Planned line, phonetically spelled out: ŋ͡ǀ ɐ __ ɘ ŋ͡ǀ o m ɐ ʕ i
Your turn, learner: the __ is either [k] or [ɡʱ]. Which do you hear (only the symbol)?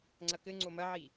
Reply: k